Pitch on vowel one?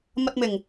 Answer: low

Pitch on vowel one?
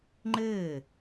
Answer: falling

